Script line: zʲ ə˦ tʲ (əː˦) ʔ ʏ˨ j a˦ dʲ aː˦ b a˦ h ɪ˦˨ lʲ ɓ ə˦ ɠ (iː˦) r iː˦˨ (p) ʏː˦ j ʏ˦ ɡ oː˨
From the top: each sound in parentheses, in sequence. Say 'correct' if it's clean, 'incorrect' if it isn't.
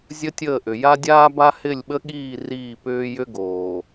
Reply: incorrect, incorrect, correct

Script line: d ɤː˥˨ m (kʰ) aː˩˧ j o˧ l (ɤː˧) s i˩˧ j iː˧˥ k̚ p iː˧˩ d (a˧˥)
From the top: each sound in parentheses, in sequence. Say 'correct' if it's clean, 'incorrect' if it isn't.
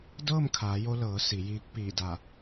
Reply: correct, incorrect, incorrect

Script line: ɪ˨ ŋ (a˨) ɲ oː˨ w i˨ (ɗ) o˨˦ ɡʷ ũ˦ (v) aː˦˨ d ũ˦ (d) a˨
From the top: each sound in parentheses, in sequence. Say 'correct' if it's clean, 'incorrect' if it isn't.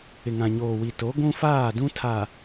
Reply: incorrect, incorrect, incorrect, incorrect

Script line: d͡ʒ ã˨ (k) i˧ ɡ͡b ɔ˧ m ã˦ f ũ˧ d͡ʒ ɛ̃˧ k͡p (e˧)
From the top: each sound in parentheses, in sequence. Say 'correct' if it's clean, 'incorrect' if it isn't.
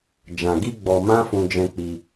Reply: incorrect, incorrect

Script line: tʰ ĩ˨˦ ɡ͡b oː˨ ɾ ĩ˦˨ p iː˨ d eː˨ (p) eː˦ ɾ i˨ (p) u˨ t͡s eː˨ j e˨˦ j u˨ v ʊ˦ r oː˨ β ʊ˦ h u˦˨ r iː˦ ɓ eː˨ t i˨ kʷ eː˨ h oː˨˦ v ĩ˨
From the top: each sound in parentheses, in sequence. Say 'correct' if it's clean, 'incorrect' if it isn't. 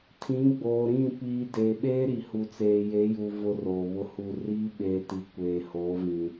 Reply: incorrect, incorrect

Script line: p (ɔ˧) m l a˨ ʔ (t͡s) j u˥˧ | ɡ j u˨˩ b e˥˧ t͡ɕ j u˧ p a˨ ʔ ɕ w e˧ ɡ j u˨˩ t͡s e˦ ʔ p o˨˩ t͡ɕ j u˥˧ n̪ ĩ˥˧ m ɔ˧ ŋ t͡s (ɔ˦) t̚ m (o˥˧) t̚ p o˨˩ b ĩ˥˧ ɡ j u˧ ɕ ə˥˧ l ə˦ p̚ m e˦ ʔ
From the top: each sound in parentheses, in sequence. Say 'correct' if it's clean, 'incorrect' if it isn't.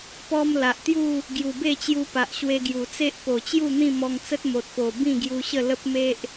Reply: correct, incorrect, incorrect, incorrect

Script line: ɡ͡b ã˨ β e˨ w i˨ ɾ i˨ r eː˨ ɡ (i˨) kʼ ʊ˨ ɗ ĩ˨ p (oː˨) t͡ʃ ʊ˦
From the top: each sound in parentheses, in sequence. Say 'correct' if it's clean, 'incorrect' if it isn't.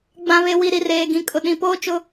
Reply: incorrect, incorrect

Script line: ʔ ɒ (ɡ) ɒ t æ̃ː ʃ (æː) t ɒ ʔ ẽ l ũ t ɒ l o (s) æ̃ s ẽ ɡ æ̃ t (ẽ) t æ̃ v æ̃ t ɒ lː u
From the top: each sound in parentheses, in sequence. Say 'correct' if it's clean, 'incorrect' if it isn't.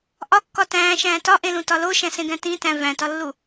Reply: incorrect, incorrect, incorrect, incorrect

